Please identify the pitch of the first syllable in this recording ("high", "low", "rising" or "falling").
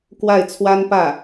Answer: falling